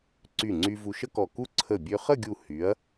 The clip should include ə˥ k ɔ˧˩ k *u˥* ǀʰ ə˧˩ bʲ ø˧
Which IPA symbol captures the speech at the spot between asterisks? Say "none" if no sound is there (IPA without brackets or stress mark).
u˥